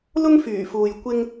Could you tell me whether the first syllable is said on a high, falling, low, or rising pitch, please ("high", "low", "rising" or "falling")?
high